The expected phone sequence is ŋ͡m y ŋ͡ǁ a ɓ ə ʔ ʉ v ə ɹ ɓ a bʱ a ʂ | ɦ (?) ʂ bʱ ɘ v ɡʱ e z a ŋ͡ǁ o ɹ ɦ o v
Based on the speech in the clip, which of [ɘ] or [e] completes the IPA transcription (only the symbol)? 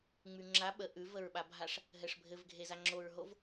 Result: ɘ